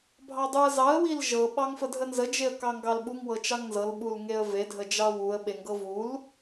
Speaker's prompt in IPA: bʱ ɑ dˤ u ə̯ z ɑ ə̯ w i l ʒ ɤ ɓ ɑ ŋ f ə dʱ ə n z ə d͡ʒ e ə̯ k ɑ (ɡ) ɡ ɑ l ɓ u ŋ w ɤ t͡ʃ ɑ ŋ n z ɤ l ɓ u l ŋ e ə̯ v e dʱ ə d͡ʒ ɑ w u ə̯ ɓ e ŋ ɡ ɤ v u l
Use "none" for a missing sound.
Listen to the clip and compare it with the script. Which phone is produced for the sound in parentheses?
ŋ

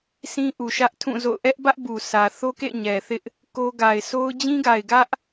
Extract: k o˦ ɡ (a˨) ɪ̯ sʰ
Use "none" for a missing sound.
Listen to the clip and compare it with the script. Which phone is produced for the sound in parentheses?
a˨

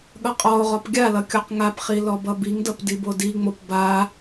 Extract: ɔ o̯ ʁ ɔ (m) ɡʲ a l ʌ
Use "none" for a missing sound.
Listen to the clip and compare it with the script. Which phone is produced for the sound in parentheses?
p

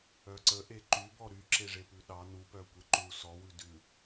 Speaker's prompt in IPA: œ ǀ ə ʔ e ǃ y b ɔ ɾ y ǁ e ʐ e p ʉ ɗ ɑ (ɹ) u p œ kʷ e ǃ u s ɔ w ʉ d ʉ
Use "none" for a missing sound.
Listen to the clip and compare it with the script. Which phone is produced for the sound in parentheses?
n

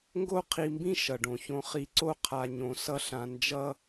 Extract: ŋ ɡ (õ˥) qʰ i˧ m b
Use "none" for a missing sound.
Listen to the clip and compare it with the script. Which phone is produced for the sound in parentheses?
o˥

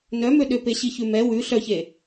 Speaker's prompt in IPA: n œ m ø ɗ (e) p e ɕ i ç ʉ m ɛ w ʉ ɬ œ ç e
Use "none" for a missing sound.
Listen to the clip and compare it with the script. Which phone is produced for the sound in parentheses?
ø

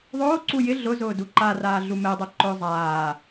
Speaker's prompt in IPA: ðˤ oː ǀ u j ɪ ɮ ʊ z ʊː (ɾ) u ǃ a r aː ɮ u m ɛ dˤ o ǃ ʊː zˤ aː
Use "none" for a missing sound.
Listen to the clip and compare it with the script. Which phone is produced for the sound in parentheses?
d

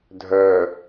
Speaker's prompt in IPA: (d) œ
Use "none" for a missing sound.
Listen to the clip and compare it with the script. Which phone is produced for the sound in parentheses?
dʱ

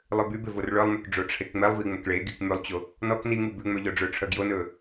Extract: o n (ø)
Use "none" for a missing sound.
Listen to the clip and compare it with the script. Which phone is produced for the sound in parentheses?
ɵ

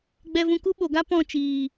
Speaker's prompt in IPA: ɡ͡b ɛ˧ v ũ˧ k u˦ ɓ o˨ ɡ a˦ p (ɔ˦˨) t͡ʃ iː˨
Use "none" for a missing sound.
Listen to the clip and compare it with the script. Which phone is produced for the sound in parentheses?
ɔ̃˦˨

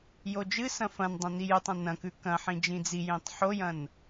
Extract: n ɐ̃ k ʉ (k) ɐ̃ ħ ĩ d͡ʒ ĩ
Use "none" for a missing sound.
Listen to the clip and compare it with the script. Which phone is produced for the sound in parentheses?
k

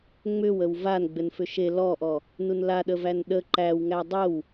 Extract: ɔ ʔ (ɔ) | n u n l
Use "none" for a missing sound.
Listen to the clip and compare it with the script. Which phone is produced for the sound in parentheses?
ɔ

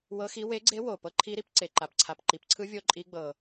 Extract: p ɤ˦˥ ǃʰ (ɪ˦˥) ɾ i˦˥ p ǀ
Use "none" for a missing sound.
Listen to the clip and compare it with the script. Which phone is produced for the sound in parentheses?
i˦˥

